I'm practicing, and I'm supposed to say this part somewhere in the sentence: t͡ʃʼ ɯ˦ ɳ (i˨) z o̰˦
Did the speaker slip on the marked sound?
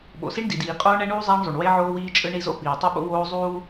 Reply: yes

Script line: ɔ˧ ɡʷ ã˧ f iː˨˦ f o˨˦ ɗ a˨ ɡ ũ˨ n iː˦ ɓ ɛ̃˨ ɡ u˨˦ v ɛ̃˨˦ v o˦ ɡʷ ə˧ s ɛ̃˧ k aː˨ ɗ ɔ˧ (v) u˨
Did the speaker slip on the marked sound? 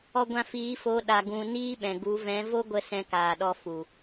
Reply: yes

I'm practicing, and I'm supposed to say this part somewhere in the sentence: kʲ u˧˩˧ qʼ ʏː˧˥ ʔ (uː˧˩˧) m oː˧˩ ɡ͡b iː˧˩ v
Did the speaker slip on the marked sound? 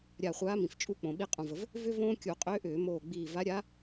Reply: yes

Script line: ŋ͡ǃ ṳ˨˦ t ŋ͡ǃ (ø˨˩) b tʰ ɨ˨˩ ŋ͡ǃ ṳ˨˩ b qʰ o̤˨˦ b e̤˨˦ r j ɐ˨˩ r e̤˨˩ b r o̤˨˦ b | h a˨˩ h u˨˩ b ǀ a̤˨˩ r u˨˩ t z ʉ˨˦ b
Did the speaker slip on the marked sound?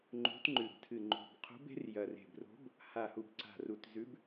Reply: yes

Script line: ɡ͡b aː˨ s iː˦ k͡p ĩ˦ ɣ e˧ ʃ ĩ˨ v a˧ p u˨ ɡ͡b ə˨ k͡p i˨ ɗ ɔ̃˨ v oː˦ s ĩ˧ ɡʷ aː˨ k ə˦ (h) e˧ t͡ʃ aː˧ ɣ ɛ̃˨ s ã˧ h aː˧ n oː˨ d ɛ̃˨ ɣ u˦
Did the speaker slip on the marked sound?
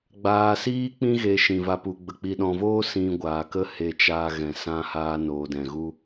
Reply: no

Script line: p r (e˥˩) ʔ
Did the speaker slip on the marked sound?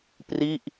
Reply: yes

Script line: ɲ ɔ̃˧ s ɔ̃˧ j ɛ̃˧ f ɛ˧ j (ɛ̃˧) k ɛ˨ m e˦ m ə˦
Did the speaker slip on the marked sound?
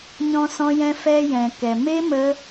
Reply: yes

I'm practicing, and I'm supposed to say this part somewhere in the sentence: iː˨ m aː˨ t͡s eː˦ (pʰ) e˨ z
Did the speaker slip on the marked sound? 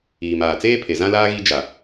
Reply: no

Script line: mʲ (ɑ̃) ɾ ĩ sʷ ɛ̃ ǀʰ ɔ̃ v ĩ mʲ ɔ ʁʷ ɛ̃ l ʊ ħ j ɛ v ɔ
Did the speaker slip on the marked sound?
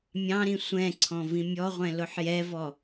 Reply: no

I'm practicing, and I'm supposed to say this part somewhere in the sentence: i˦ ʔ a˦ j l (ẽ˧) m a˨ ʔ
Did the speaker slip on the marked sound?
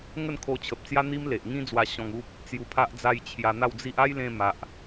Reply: no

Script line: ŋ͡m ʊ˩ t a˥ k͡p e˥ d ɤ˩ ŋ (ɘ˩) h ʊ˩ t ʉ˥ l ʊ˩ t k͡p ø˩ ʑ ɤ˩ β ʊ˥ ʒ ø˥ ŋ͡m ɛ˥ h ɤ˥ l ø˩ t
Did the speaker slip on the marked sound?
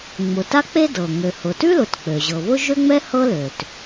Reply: yes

